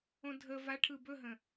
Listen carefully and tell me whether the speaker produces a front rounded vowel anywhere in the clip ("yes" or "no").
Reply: no